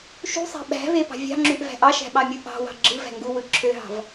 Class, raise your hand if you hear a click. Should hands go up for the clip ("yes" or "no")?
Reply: yes